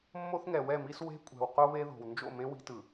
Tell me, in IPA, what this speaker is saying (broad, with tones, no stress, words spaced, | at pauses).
mːo˦θŋɛ˨wɛ˦˨mi˦s we̤˦kʷʼɛ̤˨w qo˦βe˦ ðo̤˨w nd͡ʒo̰˦˨mẽ˦ wi̤˦tɯ˨